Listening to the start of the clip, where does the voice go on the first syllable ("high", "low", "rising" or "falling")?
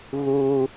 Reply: high